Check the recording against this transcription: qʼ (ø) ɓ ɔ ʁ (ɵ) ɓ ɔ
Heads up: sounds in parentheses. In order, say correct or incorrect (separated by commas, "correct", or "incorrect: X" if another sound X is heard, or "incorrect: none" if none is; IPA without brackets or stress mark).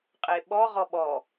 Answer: incorrect: e, incorrect: ɔ